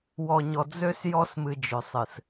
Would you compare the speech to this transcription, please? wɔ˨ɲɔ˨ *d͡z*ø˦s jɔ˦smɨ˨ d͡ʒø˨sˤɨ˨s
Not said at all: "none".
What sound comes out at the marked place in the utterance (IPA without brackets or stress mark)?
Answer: d͡z